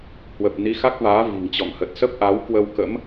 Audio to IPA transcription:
hwə˨˩p̚ni˨˦xa˦˥k̚vaː˨˦ vi̤˨˩ŋt͡ɕɔ̰˧˨ŋhə˨˩t̚ sə˦˥p̚ʔa˨˦w kwə˧wkə̰˧˥m

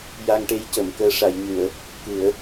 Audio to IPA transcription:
ja˧ŋʈe˧˥jcə˨˩˨mkəː˧ ʂa˨˩˨jɲɨ˨˩˨ə̯ | kɨ˨˩˦ə̯

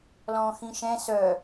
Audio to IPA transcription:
lɔ̃ːxĩʃɛ̃ sœ

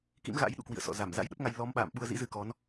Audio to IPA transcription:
kḭ˧˥mɣa̰˧˥j ɗṵ˧˨kwḭ˧˨ə̯sɔ̰˧˨ za˧˩mza̰˧˥jɗə˦˥p̚ŋa˧j lɔ˨˦mɓa̰ː˧˨m ɓu˧ə̯zḭ˧˥zɨ˧kɔ˨˦n

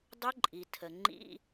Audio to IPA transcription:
dˤʊ˦˥ǃʼi˩ tʰə˩ ŋ͡ǃḭ˧˥˧

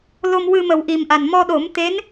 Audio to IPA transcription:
lo˧mwɨ˧mə˨˩w ʔi˨˩mʔa˨˩n mɔ˧ɗo˨˩˦mt̪e˧˥n

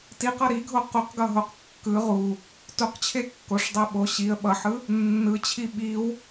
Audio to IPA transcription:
tiqʌ ɾiɡʱo quqɡʌɦoq kːɯ ʁu | tuqt͡ɕʰe kːoʂdˤe ɓo ɕiə̯ ɓʌħɯ | nːɯt͡ɕʰi ɓiw

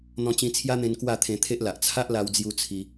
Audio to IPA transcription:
n̪ɔ̃˧t͡ɕĩ˧t͡sʰja˦n̪ẽ˧n kwa˥˧t̪ʰẽ˧t̪ʰe˦ʔla˨ʔ t͡sʰa˦ʔla˧wd͡zju˧ t͡sʰi˧

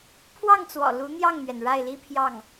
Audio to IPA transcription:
pʰwɑ˥˩ŋt͡swɔ̰˨˩ lu˧˥n̪jɑ˥˩ŋn̪ɥɛ˩n ɻa˥˩ɪ̯li˥pʰjɑ˥˩ŋ

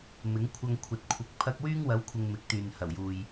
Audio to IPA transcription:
mɪ˨˥ŋkʷʰɐ˧ŋ kʷʰɐ˨t̚kʷʰɪ˨k̚ pʰɐ˧k̚wyː˥ŋwɐ˨˥w kʷʰɪ˨ŋ mɪ˨˥k̚t̪yː˨nhɐ˨˩wjuː˨j

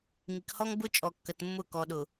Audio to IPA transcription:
ŋi˨khɔ˦ŋ bʊ˦t͡ʃʼɔ˨kːə˨tmːʊ˦˨ kɔ˨ɗʊ˨

